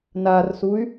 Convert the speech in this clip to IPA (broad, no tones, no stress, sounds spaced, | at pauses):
n a r s u y̯